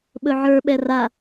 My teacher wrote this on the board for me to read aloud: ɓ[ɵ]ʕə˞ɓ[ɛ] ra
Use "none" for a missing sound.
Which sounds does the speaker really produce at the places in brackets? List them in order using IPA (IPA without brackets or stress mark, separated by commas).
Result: ɵ, ɛ